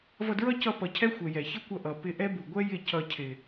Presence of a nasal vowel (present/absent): absent